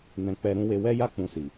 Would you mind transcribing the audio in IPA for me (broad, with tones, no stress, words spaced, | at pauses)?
nɛ̃˧ k͡pɛ˧ ɾũ˧we˧wɛ˦ja˦ k͡pũ˧si˨